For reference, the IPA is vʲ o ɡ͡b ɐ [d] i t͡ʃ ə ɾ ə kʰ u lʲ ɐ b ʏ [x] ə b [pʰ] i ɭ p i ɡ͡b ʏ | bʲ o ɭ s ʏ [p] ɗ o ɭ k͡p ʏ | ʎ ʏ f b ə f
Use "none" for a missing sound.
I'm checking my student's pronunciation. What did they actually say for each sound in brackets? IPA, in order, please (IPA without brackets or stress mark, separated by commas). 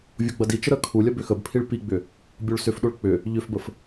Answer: d, x, pʰ, f